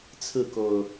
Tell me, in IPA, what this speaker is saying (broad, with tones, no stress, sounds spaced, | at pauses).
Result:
t͡sʰ ɹ̩˥˨ k o˨˩ ʊ̯